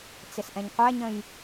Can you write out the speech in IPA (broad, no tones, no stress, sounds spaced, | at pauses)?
t͡s ɪ s ʔ ɛ̃ ɲ qʷ æ ɲ ə̃ j